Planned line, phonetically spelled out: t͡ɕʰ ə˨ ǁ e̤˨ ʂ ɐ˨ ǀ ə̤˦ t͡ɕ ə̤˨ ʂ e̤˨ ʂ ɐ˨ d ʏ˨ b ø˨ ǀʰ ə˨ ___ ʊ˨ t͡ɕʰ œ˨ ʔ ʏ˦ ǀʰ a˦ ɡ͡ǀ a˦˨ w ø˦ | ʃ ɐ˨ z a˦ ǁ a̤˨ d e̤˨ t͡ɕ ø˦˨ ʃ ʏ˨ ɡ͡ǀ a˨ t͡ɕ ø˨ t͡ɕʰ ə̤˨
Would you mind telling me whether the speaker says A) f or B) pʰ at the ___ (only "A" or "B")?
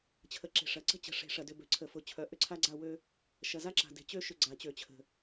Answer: A